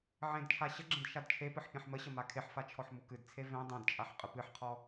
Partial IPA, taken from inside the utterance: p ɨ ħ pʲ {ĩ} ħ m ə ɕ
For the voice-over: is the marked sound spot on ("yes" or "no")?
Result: no